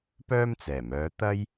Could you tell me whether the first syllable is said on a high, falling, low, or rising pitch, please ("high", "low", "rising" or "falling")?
high